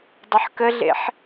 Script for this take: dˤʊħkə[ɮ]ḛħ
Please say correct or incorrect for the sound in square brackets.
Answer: correct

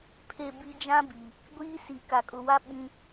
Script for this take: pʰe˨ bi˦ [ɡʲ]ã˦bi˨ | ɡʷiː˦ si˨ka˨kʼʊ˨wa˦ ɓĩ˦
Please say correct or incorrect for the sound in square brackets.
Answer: incorrect: d͡ʒ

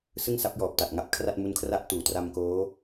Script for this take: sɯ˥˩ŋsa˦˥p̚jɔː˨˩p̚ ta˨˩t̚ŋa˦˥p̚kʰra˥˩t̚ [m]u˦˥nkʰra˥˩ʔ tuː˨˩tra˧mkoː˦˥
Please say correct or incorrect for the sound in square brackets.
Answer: correct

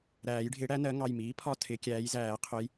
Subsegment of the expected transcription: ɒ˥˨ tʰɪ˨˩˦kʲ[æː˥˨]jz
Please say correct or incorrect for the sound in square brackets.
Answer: incorrect: æː˨˥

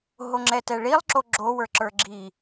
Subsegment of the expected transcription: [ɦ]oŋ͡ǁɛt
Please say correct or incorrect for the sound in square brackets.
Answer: correct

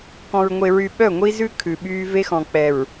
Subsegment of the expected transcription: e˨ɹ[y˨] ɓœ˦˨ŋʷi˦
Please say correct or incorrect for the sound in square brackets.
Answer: correct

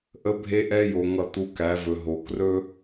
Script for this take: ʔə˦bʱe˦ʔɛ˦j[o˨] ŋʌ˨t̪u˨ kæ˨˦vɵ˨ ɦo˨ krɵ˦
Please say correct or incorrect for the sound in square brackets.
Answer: correct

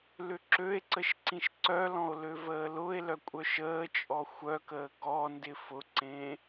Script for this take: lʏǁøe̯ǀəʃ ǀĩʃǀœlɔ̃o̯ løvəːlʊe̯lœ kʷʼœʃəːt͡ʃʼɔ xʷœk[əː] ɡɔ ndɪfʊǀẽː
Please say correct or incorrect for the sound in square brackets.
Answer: correct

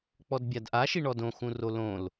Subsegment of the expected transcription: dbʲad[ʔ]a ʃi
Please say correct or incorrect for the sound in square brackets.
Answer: correct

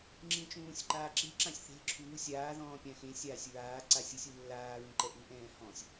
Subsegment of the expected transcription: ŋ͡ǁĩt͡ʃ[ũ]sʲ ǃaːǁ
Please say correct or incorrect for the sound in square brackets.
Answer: incorrect: ũː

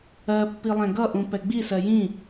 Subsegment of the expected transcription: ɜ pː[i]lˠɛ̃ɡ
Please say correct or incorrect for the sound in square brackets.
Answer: correct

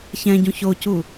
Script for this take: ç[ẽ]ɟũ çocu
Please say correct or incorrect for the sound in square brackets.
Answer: incorrect: ɛ̃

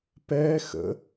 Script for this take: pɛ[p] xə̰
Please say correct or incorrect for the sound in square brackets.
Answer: incorrect: none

